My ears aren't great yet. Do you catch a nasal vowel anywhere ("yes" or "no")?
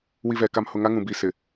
yes